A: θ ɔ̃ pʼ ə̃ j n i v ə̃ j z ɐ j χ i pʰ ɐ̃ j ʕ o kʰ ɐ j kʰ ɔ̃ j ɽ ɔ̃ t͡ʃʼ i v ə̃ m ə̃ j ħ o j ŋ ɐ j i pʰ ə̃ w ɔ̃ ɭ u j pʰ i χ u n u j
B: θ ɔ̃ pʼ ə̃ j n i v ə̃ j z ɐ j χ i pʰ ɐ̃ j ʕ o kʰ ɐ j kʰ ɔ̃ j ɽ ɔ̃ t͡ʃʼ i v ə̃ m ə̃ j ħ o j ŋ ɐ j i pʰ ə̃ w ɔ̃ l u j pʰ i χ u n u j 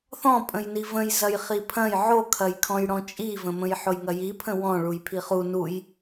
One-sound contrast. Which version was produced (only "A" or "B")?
A